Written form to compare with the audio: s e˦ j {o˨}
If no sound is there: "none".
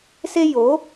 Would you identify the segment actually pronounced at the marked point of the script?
o˨˦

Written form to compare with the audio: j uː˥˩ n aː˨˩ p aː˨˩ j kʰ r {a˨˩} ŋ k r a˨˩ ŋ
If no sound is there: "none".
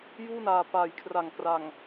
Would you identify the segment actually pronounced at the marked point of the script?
a˨˩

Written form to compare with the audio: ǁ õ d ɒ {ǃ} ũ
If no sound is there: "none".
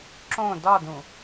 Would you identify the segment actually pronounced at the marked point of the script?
d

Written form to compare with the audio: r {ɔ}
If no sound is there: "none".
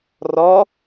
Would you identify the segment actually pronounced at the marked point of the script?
ɔ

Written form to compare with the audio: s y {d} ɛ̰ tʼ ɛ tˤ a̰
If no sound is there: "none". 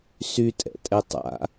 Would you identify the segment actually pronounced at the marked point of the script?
tʼ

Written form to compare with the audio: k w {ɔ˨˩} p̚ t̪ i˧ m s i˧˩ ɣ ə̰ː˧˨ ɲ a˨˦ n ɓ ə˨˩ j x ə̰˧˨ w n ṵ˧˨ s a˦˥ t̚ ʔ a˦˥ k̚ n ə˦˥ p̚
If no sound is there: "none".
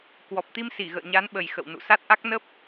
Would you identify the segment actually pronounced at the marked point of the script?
ɔ˨˩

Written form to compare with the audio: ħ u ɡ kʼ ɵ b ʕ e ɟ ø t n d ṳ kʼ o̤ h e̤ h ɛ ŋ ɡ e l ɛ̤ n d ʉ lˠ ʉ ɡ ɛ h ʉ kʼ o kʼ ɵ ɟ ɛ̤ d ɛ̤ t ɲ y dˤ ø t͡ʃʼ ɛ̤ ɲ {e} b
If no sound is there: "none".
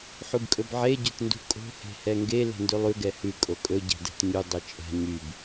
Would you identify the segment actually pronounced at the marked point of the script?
y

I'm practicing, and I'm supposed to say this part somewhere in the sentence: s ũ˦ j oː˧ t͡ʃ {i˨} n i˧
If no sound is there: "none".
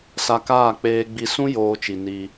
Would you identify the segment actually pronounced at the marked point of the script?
i˨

